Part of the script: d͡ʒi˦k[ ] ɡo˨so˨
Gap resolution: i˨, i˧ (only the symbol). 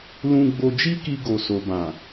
i˧